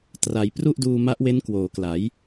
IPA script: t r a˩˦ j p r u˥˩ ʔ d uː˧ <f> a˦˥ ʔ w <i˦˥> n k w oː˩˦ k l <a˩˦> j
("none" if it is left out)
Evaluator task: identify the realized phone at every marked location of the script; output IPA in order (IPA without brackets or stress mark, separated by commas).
m, e˦˥, a˩˦